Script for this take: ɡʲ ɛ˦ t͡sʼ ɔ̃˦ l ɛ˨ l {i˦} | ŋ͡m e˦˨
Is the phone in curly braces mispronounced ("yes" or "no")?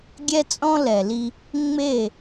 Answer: no